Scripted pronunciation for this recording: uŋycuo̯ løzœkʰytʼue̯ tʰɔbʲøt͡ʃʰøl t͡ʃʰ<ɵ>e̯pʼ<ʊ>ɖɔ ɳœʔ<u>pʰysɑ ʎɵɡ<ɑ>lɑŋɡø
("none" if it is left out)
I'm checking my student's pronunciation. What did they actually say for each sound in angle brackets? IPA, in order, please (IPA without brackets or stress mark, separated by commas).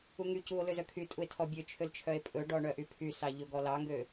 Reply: œ, ɵ, y, ɔ